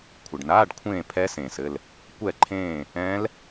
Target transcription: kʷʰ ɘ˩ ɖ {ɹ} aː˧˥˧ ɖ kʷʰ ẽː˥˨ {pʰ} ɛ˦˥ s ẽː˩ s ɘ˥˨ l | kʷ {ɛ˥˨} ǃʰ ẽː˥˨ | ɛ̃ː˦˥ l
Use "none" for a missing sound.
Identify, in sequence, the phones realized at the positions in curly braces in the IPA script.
n, pʰ, ɛ˥˨

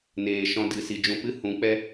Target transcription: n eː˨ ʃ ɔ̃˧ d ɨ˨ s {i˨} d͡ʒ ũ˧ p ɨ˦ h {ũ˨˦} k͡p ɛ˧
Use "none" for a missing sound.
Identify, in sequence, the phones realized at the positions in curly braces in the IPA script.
i˨, ũ˨˦

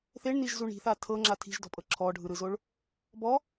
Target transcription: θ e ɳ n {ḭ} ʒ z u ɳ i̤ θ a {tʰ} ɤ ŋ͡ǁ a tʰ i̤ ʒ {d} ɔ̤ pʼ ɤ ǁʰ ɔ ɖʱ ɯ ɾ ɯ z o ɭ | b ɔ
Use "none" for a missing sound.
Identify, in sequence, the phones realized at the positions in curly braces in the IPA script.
i, tʰ, d

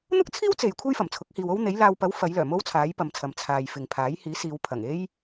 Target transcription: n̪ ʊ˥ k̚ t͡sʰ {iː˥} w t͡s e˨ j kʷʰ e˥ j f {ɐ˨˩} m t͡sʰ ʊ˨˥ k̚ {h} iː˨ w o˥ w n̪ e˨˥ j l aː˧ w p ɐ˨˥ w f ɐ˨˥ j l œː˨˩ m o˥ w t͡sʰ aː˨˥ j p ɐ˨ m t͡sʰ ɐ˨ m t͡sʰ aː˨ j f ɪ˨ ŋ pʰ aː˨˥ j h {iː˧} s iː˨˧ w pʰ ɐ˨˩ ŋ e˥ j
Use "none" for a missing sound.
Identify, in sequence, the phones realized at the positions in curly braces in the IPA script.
iː˥, ɐ˨˩, h, iː˨˥

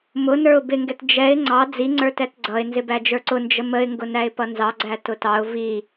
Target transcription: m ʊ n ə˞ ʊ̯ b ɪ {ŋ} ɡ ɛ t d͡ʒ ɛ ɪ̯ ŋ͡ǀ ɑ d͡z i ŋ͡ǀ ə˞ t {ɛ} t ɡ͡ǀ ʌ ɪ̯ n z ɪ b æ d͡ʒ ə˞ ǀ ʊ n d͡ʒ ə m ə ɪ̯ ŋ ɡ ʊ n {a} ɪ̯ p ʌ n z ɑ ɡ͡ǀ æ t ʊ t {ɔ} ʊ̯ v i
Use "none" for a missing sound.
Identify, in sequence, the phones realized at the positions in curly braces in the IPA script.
ŋ, ɛ, æ, ɑ

